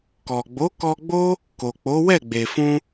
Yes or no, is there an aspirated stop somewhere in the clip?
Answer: no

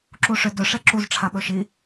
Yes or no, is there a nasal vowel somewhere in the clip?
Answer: no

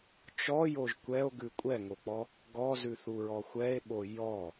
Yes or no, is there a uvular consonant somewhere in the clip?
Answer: no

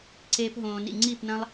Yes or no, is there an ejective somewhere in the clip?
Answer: no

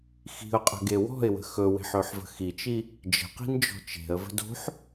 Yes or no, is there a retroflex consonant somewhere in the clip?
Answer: no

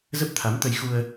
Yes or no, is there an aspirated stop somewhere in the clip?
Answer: yes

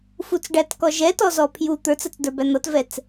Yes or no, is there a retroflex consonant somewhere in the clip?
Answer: yes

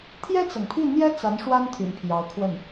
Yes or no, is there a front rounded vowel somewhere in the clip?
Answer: yes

